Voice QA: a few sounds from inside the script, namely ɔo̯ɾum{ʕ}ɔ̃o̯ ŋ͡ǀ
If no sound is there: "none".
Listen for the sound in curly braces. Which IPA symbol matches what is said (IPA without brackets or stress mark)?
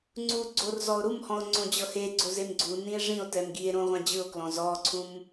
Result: h